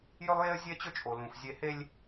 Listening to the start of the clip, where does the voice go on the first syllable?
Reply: high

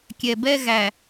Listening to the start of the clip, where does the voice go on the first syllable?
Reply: low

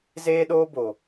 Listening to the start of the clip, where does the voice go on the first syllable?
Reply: high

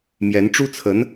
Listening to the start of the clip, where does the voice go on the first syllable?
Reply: rising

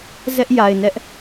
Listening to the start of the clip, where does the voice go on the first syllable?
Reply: high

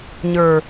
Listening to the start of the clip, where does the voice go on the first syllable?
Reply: low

